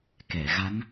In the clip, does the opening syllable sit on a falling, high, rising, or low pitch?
low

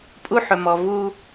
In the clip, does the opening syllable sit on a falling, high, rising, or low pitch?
high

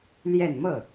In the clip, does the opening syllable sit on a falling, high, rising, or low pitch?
falling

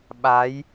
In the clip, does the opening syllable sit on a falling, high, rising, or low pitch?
rising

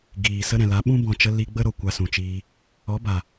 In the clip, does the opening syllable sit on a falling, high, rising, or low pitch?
low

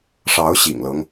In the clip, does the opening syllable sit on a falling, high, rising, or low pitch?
rising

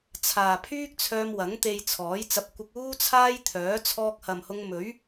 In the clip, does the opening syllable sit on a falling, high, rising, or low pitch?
low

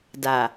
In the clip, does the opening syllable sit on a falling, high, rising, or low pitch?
low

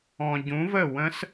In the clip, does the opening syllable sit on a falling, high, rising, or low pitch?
low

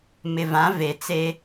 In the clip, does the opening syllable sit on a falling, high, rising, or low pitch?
low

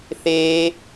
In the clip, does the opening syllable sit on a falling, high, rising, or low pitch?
high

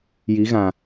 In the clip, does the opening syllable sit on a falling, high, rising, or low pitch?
rising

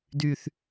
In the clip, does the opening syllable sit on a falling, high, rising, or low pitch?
high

